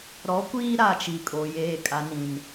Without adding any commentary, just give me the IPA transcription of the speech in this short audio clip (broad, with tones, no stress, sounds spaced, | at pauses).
ɾ ɔ˨˦ kʷ iː˦ ɾ a˦˨ t͡ʃ i˨ kʼ o˨ j eː˨ kʼ a˨ n ĩ˨ n